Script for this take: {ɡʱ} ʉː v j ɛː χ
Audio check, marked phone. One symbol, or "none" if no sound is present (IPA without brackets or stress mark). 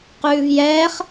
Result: q